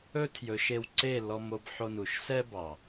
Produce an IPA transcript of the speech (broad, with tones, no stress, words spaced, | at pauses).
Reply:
ɵ˦tʰjɵ˨˦ʃe˧wǀe˦˨ lɔ˧mo˧b ħo˧nu˨ʃsɛ˦bɑ˨